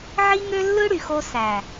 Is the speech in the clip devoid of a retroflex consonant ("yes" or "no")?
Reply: no